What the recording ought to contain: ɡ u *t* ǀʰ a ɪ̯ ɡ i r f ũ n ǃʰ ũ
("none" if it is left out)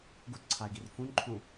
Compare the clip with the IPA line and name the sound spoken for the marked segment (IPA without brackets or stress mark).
t